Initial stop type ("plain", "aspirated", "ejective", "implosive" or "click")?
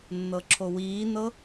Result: click